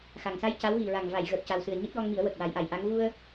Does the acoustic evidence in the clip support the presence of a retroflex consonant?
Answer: no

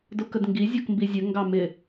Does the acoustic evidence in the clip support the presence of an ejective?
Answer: no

